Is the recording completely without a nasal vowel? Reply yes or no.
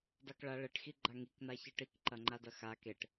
yes